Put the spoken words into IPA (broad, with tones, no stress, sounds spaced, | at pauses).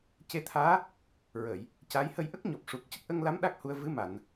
c e˧ t̪ʰ aː˧˥ | ɹ əː˨˩˨ j | c a˧˥ j h ə˧ j ʔ ə˦˥ k̚ ɲ ɔ˨˩ p̚ ʂ u˨˩ k̚ c ə˦˥ k̚ ʔ ə˧ ŋ l a˧˥ m ɗ a˦˥ k̚ h u˧ ə̯ v ɨ˧˥ m a˨˩˨ n